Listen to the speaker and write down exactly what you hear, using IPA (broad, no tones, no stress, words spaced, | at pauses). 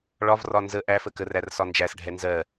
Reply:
ɭɒvrɒ nzə ʔæfə kərær sɒnd͡ʒæsɖʱɛ nzɜ